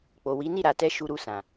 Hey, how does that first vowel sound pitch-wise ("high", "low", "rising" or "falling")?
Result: low